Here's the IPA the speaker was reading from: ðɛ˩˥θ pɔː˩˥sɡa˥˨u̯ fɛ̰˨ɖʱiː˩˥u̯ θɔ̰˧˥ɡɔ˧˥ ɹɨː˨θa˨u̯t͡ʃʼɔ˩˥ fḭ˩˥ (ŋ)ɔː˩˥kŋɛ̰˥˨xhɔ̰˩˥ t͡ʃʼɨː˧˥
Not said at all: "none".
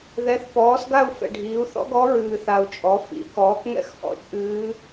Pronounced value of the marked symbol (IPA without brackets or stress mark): k